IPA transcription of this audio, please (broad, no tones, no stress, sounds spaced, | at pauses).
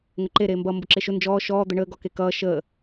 ŋ ə ǃ e ɾ eː m b ʌ m b ʊ ǁ e ʃ ʊ n d͡ʒ ɔː ʃ ɔː d̪ ə ɳ əː ɡ ɔ k e k ʌː ʃ ə